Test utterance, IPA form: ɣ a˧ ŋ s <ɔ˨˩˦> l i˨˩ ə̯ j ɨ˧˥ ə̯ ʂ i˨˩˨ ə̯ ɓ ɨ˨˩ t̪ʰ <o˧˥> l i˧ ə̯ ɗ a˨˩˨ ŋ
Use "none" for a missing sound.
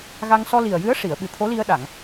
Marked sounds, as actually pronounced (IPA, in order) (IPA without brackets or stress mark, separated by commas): ɔ˧, o˧˥